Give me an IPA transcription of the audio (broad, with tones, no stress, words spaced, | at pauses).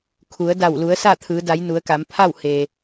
kʰu˩˧ə̯da˧˩w lu˩˧ə̯sa˥˨t̪ʰɯː˩˧ da˩˧j nu˩˧ə̯ka˩˧mpʰa˥˨w he˩